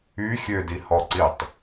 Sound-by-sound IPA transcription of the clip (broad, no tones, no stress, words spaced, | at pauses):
y xʲødihɔǀitˤ